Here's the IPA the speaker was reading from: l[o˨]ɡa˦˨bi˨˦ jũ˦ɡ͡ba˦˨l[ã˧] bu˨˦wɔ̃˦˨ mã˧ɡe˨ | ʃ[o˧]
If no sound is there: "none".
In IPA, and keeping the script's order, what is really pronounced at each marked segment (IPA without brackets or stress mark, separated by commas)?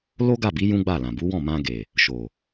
o˦, ã˨, o˨